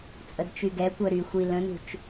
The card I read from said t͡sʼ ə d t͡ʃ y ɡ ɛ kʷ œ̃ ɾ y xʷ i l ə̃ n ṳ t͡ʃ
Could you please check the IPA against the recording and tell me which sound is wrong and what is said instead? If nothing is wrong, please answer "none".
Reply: œ̃ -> œ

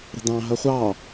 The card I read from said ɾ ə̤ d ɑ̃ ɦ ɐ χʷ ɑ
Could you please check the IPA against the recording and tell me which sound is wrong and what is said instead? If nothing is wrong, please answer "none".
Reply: none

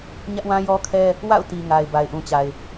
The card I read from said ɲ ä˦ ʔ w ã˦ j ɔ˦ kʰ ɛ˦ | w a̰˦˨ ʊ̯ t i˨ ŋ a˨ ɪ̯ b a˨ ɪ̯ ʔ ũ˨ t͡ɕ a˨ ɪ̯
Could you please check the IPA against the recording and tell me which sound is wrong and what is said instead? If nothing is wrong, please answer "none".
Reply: none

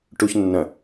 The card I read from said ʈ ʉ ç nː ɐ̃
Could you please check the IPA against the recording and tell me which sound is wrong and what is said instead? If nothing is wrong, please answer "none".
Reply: ʉ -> u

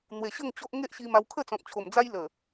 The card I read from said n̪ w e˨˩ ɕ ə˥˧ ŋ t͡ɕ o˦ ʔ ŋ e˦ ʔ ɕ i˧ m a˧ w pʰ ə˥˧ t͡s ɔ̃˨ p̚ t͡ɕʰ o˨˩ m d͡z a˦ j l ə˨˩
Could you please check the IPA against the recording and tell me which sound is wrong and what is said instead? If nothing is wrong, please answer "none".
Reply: pʰ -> kʰ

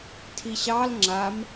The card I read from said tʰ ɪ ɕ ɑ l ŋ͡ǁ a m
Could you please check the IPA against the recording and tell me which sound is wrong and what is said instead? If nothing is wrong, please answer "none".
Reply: ɪ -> i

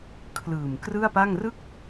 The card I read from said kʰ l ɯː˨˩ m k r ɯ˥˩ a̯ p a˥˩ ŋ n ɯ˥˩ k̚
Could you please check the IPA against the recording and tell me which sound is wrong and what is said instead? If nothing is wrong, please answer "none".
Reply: n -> r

